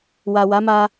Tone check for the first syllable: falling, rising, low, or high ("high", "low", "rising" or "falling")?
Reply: low